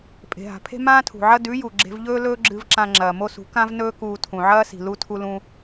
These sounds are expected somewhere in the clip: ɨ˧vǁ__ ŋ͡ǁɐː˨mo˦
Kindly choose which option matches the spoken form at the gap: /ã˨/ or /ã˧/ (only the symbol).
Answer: ã˧